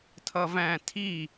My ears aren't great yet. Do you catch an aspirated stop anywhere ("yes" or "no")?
yes